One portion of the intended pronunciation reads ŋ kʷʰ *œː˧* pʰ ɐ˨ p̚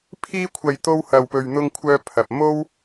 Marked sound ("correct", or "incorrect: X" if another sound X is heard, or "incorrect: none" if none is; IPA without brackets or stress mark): correct